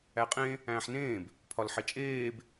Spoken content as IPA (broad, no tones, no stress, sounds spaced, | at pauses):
æ qʼ ẽ | æ̃ː ħ n ẽː b | pʰ ɒ l ħ e t͡ʃʼ eː b